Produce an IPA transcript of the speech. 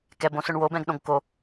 kɛ bõsʊɳwob ɛ̃ɡɗõɡko

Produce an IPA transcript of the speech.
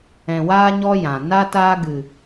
ɛ̃˨waː˧ɲɔ˧ jã˨ na˧ taː˧ɡɨ˨

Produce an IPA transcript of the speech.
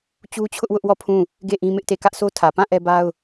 t͡ɕu˦t͡ɕʰʊ˦ʔwʊ˦ʔwɔ˦˨ pʰũ˦˨ | ɡe˦˨ ʔĩ˦mɪ˦ʔte˦˨ kä˦ʔsʰo˦tʰä˨ pã˦˨ ʔɛ˦ba˦ʊ̯

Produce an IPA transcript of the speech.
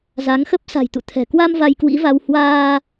za˨˦ŋxə˦˥p̚ sa̤˨˩jt̪ṵ˧˨t̪ʰɛ̤˨˩kwa˧m va˧jkwḭ˧˥va˧w hwaː˧

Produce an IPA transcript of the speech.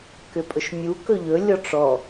kʏpʼɵʃmʲu kɵʎɵ lʲɔʈ͡ʂɔ

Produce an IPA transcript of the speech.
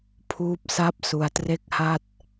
pʰuː˦˥p̚sa˥˩p̚ su˧a̯tre˥˩k̚ha˥˩t̚

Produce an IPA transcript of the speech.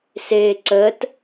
seːǀəːt

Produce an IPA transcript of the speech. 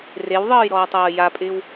rewðˤɤːj ɾɔːtˤɤːjapʼɪːw

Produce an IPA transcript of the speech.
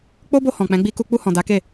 k͡po˦bo˧ hɔ̃˨k͡pɛ̃˨˦ɡ͡bi˧ku˧ k͡pu˧hɔ̃˨ da˨˦ke˦˨

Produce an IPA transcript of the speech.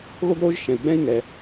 ɣo˥ɡɾoː˥ʒʃɛ̃˩i̯ɡ͡bɛ̃˥i̯ ŋɛ˩

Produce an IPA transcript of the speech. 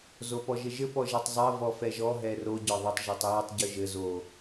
zopɔʒɘʒɘ pɔʒɛtˤzˤɜ vɔfɛʒɔ ɦɛro ɟɒðˤʊtˤ ʒɔtˤjɜtˤ ɟʊʒɘ zo

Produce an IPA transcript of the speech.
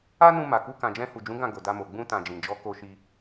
a˦nũ˧ ma˨ku˧ kã˨d͡ʒɛ̃˧hu˨d͡ʒũ˨˦ ɡã˦˨ɡo˨da˧mo˨ ɡ͡bũ˧tã˨d͡ʒĩ˨d͡ʒɔ˨˦ ko˧ʃi˧

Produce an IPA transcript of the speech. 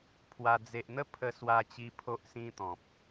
pʰwa˧ d͡ze˨ʔn̪ə˥˧ pʰə˧swa˧t͡ɕi˧ pʰo˦ʔsĩ˦t̪ɔ̃˨p̚

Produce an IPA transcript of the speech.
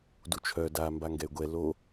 dut͡ʃʰœ da mbaŋɡɛy̯ɡʷɛ lo

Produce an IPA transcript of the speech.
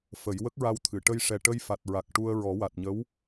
fə˨˩˦j wə˦˥k̚ɹa˧wt̪ʰɨ˨˩˨ ʈə˧jʂɛ˨˩ ʈə˧jfa˨˩t̚ɹa˨˩k̚ ʈu˧ə̯ɹɔ˨˩˦ wa˨˩t̚ɲə˧˥w

